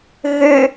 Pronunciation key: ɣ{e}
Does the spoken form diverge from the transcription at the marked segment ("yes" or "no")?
yes